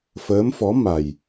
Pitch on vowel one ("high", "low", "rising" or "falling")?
rising